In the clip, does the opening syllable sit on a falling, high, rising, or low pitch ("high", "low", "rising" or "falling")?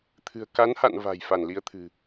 low